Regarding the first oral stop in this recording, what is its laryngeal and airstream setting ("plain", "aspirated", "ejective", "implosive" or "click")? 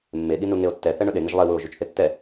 implosive